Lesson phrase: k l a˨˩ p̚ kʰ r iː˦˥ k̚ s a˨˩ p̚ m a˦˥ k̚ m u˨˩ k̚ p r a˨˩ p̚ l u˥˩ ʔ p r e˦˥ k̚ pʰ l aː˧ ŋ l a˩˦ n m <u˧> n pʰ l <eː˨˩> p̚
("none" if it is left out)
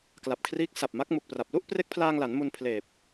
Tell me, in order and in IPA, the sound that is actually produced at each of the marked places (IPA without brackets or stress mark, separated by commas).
u˧, eː˨˩